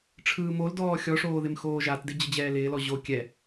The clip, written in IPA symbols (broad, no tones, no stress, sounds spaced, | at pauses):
ʈ͡ʂʰ ɯː m o l d ɔː xʲ ɔ ʂ oː ð ɪ m x oː ʒ a t d ɪ d͡ʑ ə d͡ʑ ɛː l ɪː l ɔ ʑ o kʲ ɛ